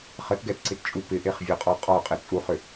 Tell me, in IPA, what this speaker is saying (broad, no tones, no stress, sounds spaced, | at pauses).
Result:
χ ə t ɡ ɛ t ǀ ɪ t t͡ʃʼ u p ɪ ʔ e χ vʲ ɒ qʼ ɔ qʼ ɔ qʼ ɪ t͡sʼ u χ ʏ